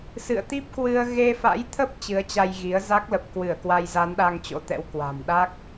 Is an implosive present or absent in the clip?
present